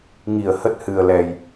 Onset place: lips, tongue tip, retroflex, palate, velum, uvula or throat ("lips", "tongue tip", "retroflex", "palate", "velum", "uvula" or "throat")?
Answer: velum